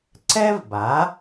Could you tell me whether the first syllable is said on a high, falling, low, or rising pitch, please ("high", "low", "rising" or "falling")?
high